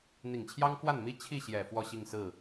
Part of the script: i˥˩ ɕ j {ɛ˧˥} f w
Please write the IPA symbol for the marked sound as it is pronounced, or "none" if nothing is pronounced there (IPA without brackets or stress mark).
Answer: ɛ˨˩